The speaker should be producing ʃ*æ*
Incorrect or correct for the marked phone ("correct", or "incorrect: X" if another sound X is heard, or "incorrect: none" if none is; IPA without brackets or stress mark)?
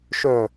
incorrect: œ